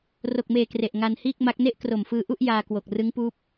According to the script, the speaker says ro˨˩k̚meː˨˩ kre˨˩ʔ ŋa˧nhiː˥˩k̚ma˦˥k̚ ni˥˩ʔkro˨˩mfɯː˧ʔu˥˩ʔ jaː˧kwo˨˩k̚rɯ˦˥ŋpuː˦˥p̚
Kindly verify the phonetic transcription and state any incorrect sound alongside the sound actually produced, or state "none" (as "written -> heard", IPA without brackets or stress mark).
i˥˩ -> e˥˩